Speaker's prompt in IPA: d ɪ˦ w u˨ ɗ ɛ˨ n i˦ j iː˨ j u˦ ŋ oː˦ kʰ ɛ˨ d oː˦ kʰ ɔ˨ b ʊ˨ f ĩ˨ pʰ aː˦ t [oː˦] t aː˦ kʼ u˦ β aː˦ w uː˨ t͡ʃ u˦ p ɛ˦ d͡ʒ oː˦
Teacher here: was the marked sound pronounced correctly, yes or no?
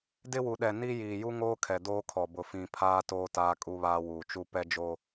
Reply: yes